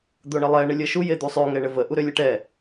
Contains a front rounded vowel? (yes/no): yes